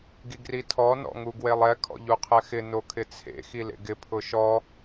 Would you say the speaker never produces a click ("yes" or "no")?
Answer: yes